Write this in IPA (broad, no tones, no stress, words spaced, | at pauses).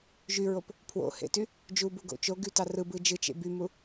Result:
ʒyɹop | pʰwo̰hḛty | d͡ʒubuɡo̰ t͡ʃoɡytɑ rɯbɯ d͡ʒɯt͡ʃḛ bymu